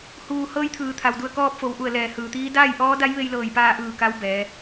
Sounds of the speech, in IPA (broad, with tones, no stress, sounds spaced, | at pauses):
h uː˩ h ɤː˧ j t̪ʰ ɯː˩ t̪ʰ a˩ w d u˧˩ ə̯ k ɔː˧ p̚ f o˩˧ w ʔ u˧˩ ə̯ l ɛː˧˩ h ɯː˩ t̪ iː˧˥ d aː˥˨ j ʔ ɔː˧˥ d a˧˥ j ʋ e˧ j l ɤː˧˩ j p aː˧ ʔ ɯː˧˩ k a˧˥ w b ɛː˩˧